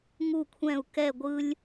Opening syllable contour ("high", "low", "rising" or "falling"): falling